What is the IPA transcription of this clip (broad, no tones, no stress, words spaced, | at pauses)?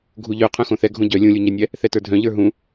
ɡʱuʎœ qʰœ̃xõθɛ ɡʱõɟœ lʲũlʲuɲɛnʲɛ | θɛtə˞dʱœ̃ ʎə˞ɦũ